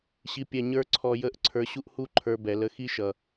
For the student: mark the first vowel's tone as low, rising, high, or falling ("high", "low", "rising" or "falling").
high